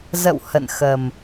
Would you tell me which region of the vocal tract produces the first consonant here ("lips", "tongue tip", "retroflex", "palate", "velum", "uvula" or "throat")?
tongue tip